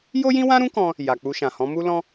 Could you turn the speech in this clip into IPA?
jo˦jĩ˦wã˦ɾũ˦ kɔ̃˦ | ja˨k͡pu˧ʃã˨ hɔ̃˨˦mu˦lɔ̃˦

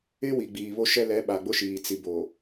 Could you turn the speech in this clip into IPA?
ɪ˦wi˨ ɡ͡biː˨βo˦ʃɛ˦ lɛ˨˦ɓa˨ɡ͡bʊ˦ʃiː˨ t͡si˨bo˨

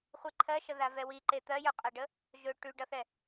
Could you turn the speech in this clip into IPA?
χʷiǃʰɜʃə ðavɛwiǃe t̪ɜjɵqʼaɖə | ʒɵ ʈʉɖʌθɛ

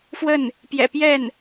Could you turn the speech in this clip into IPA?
fwə˥˩n | pjɛ̰˨˩pjɛ˥˩n

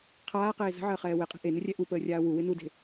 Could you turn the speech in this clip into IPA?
qʰaːqeː zə̤ʕəːχɛː weqʼe̤ ʔenɪrʲɛ ʔupəːrʲaː wuwɪ nude̤

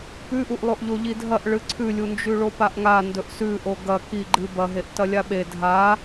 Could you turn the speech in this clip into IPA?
pʉʔuʔ lˠoʔʎoʎidʱɐʔ ɭɨǀʰʉlʲu nd͡ʒʉɭopaʔŋa ndɵʔsʉʔo ɡɐ ki ɡ͡ǃɨ bɐɦeʔ tɐlʲaɓe dʱa

